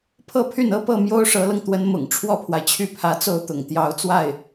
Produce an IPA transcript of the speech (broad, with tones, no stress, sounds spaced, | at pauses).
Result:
pʰ ɤ˥˧ pʰ y˥˩ n ɤ˥ p ɤ˥˩ m j o˥ ʊ̯ ʂ ɤ˧˥ l ɤ˧ ŋ t̪ w ə˧˥ n m ʊ̰˨˩ ŋ ʈ͡ʂʰ w ɔ˥˩ pʰ w a˩ ɪ̯ t͡ɕʰ y˥˩ pʰ ä˧˥ t͡s o˥˩ ʊ̯ t̪ ʊ̰˨˩ ŋ t̪ j ɑ˧˥ ʊ̯ t͡s w a˥˩ ɪ̯